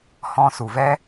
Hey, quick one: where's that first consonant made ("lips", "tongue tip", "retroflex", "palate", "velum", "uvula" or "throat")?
throat